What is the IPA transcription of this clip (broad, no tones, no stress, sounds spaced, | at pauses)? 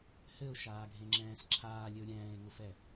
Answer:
h ɘ ʊ̯ ʃ aː ɡʱ ẽ ŋ͡ǁ ɛ̃ː s ǁʰ aː lʲ ɘ ʊ̯ ɾʲ ɛ̃ː ɪ̯ ŋ ʊ f ɛ